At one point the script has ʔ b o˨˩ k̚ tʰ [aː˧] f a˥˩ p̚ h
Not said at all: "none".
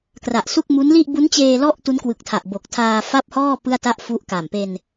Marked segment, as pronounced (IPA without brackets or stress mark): aː˧